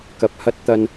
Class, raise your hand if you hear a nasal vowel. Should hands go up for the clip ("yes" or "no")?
no